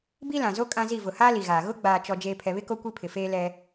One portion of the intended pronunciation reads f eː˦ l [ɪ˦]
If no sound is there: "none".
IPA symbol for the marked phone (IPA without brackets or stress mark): ɛ˦